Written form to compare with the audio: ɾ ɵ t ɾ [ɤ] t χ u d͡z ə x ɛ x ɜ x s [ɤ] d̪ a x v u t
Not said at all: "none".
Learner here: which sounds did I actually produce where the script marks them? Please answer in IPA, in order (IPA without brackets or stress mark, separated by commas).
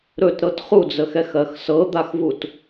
ɤ, ɤ